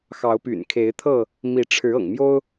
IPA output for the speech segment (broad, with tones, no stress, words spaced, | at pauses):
xɑ˨˦ʊ̯py̰˨˩nkʰe˨˦ɪ̯t̪ʰɤ˥˨ | mi˨˦ʈ͡ʂʰɻ̩˨˦ ɤ̰˨˩ŋmjo˦ʊ̯